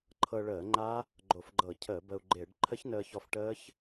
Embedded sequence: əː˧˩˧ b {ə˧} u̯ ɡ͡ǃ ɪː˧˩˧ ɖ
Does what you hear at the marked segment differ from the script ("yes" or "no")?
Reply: no